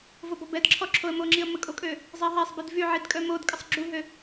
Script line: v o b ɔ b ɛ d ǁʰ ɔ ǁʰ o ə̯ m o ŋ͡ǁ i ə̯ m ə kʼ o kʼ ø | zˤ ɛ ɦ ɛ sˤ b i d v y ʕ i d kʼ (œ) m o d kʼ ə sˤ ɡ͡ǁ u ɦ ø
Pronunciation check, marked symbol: correct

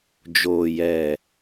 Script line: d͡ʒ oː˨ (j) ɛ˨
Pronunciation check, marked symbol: correct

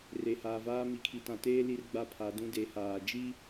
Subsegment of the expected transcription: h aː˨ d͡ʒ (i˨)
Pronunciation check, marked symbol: incorrect: i˦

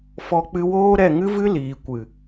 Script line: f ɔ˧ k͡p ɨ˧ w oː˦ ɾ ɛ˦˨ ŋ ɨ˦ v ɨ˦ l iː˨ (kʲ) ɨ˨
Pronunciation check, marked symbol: incorrect: kʷ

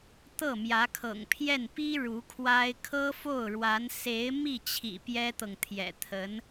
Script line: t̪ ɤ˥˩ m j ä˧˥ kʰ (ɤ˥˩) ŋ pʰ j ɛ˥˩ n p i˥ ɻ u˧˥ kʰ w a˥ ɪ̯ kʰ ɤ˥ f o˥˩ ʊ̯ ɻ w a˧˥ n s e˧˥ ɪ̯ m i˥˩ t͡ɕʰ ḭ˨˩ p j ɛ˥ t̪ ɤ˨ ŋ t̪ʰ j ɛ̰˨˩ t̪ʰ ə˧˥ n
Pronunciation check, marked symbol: incorrect: ɤ̰˨˩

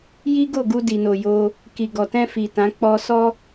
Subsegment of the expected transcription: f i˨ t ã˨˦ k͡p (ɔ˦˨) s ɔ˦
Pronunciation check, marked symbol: incorrect: ɔ˧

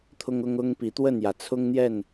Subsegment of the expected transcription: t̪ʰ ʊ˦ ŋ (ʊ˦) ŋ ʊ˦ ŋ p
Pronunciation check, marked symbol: correct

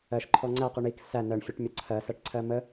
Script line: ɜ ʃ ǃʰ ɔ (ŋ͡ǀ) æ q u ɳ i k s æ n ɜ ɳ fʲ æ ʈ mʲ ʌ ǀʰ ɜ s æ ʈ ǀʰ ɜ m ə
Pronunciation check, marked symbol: correct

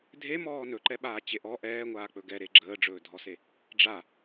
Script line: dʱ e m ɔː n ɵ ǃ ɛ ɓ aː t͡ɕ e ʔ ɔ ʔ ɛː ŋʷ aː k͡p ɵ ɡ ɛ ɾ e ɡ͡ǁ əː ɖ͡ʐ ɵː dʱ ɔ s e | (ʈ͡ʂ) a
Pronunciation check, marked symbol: incorrect: ɖ͡ʐ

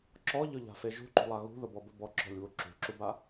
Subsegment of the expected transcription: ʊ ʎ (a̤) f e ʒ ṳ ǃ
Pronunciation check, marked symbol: correct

